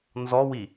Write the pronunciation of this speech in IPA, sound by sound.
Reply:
n z ɔ w i

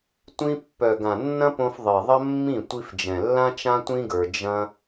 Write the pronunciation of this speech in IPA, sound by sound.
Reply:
tʷ ĩ˧ pː œ˨ ɡ ã˨ nː ɐ̃˦ p õ˧ f ðˤ i˨ ðˤ ɐ˦ mː ĩ˦˨ tʷ i˧ f d͡ʒ ɛ̃˨ lː ã˦ t͡ʃ ã˦ tʷ ĩ˦ ɡ ə˞˧ d͡ʒ ɐ̃˦

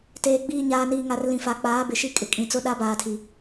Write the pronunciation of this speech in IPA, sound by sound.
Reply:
t eː˨ ɡ͡b iː˨ ɲ aː˨ n iː˨ ŋ a˨ r l ĩ˨ f a˨ k͡p aː˨˦ b ɪ˨ ʃ i˦ kʼ ɪ˨ kʼ ĩ˨ t͡s ʊ˦ ɗ a˦ b aː˨ tʰ i˨

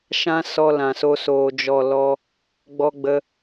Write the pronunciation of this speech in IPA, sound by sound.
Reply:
ʃ ã˦ s ɔ˧ l ã˨ s o˧ s oː˨ d͡ʒ ɔ˨ l ɔ˧ | ɡ͡b ɔ˧ ɡ͡b ə˧

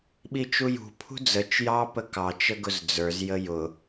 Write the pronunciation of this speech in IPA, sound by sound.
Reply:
ɓ i t͡ʃ u j ṳ pʰ ṳ d͡z ə t͡ʃ j ɑ p ə k ɑ t͡ʃ ə ɡ ʊ z d͡z ə˞ z j ə j ʊ

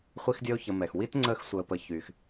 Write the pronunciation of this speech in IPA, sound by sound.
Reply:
χʷ i˦ x dʲ əː˦ o̯ ç ə˨ m ɛ˩ x w i˥ t ŋ͡ǀ əː˦ x sʷ əː˨ p ə˨ ç yː˩ x

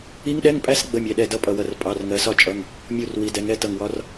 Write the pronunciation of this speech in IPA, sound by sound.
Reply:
i˦˥ ŋ ɗ ɛ˧˥˧ ŋ pʼ æ˦˥ s ɡ͡b ə˧˥˧ mʲ ɛ˩˧˩ ɗ ɛ˧˩ d ʌ˧˥˧ pʼ ʌ˧˩ w ʌ˧˩ r pʼ ɑ˩˧˩ r ŋ ɜ˩˧ s ɒ˥˨ t͡ʃʼ ʌ˩˧˩ ŋ | mʲ u˧˩ r w i˩˧ d ɛ˩˧ ŋ ɛ˩˧˩ t ʌ˧˩ ŋ w ɒ˦˥ r

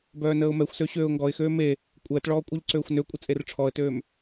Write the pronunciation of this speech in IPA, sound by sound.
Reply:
b œː n əː ʊ̯ m ɛ xʷ s ø ɕ øː ʊ̯ ŋ ɡ ɔ ɪ̯ x øː m e | kʷʼ əː t ɭ ɔː kʷʼ œ ʎ ǀ øː xʷ n ø kʷʼ ə t͡sʼ e r ʈ͡ʂʰ ɔ ə̯ t øː m

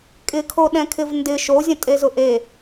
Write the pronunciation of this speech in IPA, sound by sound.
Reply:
kʼ ɪ kʰ o ɗ ɛ̃ kʰ ɪ v n d ɪ ʃ o zʲ ə̃ tʼ e z ʊ ʔ e

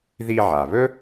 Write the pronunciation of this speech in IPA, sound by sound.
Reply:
ð i˧ ʕ a˩ β ɵ˥

